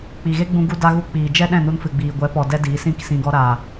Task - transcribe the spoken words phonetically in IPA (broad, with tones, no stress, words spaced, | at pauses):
k͡pi˨ɣe˦ ɡ͡bũ˧ɡu˧da˧ɣu˧ k͡piː˨d͡ʒɛ˦ ɗɛ̃˦˨nu˧nfɨ˨ɡ͡biː˨ ɡʷɛ˨˦pɔ˨dɛ˧ diː˨˦sĩ˦ksĩ˧ ɡɔ˧ɾaː˨